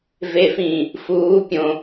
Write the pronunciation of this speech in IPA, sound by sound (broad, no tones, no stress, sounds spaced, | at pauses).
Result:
v e f ĩː | f uː pʲ õ